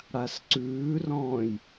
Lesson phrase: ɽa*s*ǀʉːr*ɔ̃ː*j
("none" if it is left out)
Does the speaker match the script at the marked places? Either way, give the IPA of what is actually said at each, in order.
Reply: s, ɔ̃ː

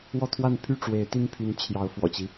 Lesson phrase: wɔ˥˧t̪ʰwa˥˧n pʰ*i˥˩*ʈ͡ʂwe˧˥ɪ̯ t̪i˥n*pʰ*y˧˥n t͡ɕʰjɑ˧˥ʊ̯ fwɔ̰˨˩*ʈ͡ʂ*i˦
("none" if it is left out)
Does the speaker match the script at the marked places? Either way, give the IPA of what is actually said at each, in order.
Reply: y˥˩, pʰ, t͡ɕ

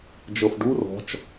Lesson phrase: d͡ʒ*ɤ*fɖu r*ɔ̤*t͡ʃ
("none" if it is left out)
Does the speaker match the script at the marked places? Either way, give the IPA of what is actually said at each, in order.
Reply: ɤ, ɔ̤

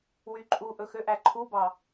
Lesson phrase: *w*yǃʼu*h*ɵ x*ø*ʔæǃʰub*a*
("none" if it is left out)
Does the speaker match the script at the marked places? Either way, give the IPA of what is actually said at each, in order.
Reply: w, ʔ, ø, ɑ

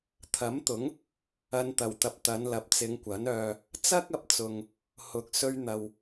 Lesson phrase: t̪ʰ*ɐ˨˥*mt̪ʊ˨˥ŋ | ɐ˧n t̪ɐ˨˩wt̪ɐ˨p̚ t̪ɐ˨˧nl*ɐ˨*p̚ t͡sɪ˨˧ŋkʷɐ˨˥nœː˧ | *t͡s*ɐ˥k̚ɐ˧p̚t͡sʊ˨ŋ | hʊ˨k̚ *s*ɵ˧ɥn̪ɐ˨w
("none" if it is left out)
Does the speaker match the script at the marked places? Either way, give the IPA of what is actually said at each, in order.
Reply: ɐ˨˥, ɐ˨, t͡s, s

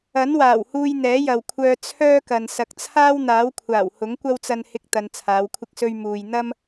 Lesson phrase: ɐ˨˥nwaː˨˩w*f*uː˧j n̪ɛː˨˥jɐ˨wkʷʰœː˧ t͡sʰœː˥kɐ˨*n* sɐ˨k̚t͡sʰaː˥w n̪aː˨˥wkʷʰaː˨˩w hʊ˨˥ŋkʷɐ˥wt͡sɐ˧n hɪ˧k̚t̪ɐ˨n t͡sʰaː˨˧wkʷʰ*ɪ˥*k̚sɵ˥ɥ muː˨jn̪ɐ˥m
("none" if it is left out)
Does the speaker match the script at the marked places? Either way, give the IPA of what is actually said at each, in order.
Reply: h, n, ɪ˥

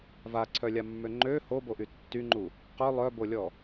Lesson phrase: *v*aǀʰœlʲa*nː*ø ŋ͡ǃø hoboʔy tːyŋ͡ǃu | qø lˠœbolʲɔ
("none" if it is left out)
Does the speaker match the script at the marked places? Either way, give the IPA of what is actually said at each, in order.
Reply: v, mː

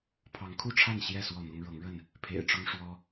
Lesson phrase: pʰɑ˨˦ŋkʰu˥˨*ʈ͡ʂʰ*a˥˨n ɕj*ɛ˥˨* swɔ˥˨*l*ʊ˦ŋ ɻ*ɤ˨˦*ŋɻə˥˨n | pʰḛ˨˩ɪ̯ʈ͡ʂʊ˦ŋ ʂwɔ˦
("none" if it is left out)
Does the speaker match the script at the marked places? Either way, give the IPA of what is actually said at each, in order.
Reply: ʈ͡ʂʰ, ɛ˥˨, n̪, ɤ˨˦

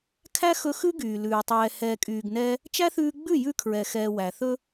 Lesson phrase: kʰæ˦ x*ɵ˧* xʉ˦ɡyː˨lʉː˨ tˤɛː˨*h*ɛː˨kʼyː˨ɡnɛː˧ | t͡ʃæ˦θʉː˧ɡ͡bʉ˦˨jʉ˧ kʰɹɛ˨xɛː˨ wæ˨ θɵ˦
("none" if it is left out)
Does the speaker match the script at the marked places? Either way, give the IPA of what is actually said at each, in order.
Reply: ɵ˧, h

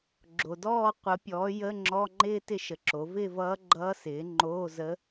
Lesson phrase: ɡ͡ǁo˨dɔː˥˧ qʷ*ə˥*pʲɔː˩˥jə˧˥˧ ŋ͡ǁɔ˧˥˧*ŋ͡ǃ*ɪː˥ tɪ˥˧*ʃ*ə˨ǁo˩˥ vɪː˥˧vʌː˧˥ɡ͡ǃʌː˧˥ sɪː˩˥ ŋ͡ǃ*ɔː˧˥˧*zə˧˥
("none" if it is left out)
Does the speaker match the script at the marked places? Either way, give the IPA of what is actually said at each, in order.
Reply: ə˩˥, ŋ͡ǃ, ʃ, oː˧˥˧

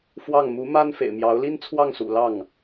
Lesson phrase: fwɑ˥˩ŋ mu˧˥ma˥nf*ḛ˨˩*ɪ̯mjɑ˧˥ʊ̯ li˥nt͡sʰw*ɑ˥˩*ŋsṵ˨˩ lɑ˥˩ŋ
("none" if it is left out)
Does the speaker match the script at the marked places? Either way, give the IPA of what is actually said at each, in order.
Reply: ḛ˨˩, ɑ˥˩

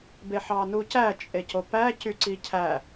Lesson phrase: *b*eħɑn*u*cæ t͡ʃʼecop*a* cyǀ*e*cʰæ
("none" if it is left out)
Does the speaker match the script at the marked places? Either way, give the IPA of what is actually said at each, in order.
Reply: b, u, æ, i

